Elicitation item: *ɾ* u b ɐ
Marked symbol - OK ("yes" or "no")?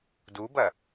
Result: no